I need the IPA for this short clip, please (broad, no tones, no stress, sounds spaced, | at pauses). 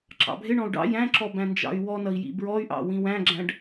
ǁ ɑ̰ bʱ ɪ ɳ ɔ̃ u̯ ɖ ɑ̰ j æ̃ ǁ ɔ b æ̃ n d͡ʒ ɑ̰ y̯ w ɔ n ʌ i̯ j ḭ b ɹ ɔ y̯ ʔ ɑ̰ w ĩ w æ̃ ɡ͡ǁ æ̃ ɖ